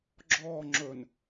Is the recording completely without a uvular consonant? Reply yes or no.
yes